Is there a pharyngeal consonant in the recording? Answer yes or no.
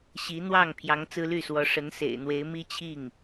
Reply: no